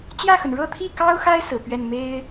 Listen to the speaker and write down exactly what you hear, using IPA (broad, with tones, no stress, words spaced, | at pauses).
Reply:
t͡ɕjä˥˩xə˩n ɻɤ˥˧t̪ʰi˥˩kɑ˥ʊ̯xa˥ɪ̯ sɹ̩˨˩pɥɛ˥˩n me˥ɪ̯